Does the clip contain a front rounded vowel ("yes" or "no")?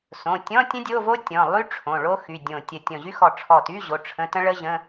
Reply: yes